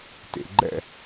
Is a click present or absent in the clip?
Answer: present